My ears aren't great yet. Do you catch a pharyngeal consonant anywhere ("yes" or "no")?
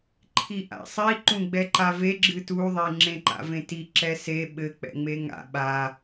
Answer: no